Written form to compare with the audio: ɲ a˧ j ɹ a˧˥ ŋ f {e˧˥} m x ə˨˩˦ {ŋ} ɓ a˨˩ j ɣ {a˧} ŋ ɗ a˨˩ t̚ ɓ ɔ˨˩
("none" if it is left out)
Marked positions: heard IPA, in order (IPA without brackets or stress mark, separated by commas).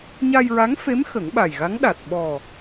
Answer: e˧˥, ŋ, a˧˥